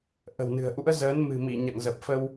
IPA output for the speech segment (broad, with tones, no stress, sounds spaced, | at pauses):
ʔ ə̤˨˩ w n ɨ̤˨˩ ə̯ ʔ ṵ˧˥ ə̯ z əː˨˦ n m ɨ̤˨˩ m i˧˩ ɲ a̰˧˨ ŋ z ə˨˩ p̚ f ə˧ w